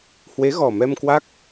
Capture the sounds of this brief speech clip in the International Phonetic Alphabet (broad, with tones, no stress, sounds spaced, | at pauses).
h w e˨˦ ɣ ɔ˨˩ m ɛ˧ m k w a˦˥ k̚